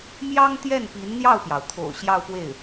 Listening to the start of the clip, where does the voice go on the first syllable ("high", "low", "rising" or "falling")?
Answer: high